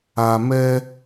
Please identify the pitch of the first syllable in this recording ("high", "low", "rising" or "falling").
low